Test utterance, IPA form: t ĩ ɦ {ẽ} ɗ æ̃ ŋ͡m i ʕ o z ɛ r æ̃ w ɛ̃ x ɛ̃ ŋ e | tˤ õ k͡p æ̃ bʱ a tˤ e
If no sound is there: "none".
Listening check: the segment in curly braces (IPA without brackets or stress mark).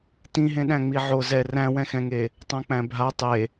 ẽ